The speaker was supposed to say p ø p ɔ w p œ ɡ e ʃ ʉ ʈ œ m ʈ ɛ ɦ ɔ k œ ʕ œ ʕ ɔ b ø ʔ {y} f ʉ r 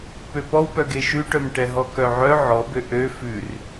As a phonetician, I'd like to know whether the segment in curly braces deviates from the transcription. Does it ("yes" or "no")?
yes